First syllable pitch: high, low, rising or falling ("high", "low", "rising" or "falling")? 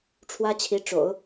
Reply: high